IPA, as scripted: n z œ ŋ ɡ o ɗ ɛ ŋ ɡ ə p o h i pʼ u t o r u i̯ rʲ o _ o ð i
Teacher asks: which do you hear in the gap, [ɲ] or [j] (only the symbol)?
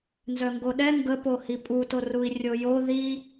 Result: j